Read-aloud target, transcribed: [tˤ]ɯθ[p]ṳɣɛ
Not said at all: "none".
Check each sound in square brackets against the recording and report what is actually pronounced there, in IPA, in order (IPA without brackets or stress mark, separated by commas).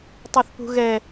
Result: tˤ, p